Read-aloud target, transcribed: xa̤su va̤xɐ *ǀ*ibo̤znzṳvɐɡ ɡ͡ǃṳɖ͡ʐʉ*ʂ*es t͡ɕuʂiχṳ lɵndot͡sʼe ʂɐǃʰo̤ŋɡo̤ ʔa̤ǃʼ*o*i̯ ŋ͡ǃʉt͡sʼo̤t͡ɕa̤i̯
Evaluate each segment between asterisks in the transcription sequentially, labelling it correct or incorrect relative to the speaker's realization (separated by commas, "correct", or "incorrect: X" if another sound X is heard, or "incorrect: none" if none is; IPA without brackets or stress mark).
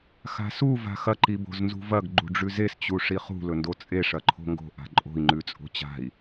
incorrect: ǃ, incorrect: z, incorrect: o̤